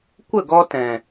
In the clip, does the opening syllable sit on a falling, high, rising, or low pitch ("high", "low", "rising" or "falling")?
falling